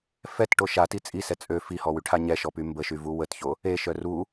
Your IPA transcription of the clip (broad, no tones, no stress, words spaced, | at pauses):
fɛtʈo ʃati t͡sʼisɛ t͡sʼø fihɔwyʈʰa ɲɛʃɔpy mbəʃyvu wətço | eʃœ ru